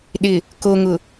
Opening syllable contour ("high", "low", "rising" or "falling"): low